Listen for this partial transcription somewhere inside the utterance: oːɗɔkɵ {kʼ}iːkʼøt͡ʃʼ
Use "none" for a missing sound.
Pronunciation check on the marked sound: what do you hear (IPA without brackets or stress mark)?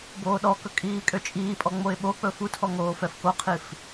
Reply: kʼ